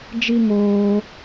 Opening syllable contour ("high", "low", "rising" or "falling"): high